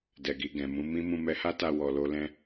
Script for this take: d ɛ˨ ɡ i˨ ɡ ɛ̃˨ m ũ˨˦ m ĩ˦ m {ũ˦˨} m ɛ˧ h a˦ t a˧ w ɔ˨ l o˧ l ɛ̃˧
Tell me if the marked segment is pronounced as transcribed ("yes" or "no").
no